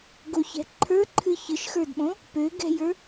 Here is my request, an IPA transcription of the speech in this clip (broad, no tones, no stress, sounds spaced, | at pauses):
ɡ o ç ɛ̤ ǃʰ ə˞ ǃʰ ɨ ç ɨ ʃ x ə˞ d ɓ õ | p ø ɡ ɛ̤ j ə˞